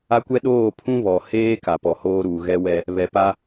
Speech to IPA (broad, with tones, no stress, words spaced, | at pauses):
a˦kʷɛ˦ ɗoː˦˨ pʰũ˦βɔ˨ heː˦ ka˨pɔ˨hoː˦ɾuː˨ ɣɛ˦wɛ˦ | βɛ˨pa˦